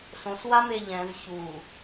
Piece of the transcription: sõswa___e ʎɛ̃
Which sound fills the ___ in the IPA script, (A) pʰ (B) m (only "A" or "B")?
B